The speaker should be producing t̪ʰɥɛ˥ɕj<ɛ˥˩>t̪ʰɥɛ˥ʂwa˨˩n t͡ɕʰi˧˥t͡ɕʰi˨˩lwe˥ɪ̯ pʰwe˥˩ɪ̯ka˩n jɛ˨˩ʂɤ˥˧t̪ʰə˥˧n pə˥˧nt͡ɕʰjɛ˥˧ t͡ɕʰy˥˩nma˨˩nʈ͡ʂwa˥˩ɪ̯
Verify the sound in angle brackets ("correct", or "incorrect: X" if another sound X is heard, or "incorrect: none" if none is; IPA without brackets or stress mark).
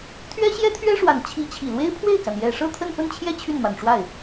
incorrect: ɛ˥